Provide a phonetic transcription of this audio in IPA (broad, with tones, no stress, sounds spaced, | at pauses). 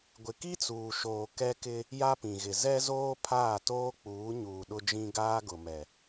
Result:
ɡʷ ɪ˨ k i˦ t͡s uː˨ ʃ oː˨ k ɛ˦ k ɪ˦ | j a˦ p ĩ˨ ɣ ɪ˨ z ɛ˦ z oː˦ pʰ aː˦˨ t oː˦ k͡p uː˨˦ ɲ uː˨ ɗ ʊ˦ d͡ʒ ĩ˦ ɡ aː˦ ɡ ʊ˨ m ɛ˨